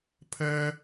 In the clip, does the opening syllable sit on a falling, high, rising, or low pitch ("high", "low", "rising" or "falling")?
high